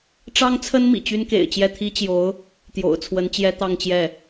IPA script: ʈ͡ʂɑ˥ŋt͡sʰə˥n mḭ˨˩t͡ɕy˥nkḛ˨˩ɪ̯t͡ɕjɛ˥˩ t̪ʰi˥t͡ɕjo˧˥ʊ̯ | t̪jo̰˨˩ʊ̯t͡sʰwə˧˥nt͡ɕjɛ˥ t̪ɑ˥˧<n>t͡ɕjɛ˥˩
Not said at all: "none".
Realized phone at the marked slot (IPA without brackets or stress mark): ŋ